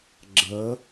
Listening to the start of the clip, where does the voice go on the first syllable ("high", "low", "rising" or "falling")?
rising